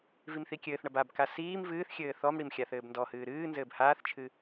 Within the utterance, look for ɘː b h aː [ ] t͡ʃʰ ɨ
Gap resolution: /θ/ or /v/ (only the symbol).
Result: θ